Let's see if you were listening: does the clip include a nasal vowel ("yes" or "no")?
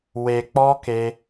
no